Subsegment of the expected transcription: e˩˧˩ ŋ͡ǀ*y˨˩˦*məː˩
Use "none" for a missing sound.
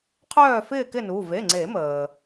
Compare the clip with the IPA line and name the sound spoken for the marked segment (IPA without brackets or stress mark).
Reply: e˨˩˦